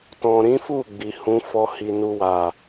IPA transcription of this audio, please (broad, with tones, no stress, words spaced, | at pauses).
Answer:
tɔ̃˨ɾĩ˨˦fu˦˨ ɡ͡bi˨hũ˨˦ fɔ˦ hi˧nu˦wa˦˨